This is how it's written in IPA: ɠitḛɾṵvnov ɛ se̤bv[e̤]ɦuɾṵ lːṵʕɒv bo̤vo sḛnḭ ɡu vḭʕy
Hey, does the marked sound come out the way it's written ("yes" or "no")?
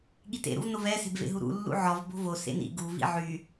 no